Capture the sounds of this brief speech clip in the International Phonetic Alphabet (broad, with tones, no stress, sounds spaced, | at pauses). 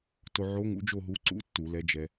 t o˧ ʕ o˧˥ ŋ ṵ˧˥ d͡ʒ o˥˧ ɦ u˧˥ ǀ ṵ˧˥˧ tː u˧˩˧ l ɛ˧˥ d͡ʒ ɛ˧